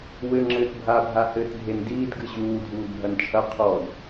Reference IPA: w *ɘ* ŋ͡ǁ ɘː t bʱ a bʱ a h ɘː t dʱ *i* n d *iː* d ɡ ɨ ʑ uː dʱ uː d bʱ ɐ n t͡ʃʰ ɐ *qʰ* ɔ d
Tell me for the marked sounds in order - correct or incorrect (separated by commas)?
correct, incorrect, correct, correct